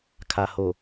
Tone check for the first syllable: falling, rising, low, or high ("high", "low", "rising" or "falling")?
low